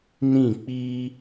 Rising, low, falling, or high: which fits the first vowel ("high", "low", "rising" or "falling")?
falling